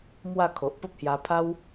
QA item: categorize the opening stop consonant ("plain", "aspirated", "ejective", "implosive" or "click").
aspirated